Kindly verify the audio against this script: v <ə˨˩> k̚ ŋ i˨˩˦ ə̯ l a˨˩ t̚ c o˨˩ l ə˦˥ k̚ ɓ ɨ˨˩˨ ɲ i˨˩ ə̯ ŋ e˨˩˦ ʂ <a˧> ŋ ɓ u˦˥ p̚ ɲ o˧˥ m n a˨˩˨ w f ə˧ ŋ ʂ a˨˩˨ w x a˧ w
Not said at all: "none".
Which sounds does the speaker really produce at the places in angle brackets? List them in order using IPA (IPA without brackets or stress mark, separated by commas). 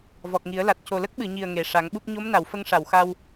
ɔ˨˩, a˨˩˦